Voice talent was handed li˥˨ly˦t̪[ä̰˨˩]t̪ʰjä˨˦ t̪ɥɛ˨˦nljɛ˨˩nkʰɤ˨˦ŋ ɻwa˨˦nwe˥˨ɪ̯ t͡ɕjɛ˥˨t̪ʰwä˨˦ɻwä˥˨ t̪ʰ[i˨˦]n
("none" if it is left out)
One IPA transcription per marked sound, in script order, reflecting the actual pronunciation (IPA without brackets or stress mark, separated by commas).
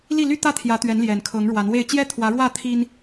ä˦, i˦